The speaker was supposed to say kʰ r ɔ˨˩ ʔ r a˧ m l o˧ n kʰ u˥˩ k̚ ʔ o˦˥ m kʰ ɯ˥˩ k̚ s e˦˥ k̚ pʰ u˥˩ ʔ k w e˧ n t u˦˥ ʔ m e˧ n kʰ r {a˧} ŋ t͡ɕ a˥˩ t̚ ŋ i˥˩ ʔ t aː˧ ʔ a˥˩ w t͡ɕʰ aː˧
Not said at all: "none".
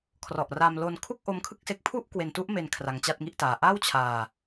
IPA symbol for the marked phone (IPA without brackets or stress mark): a˧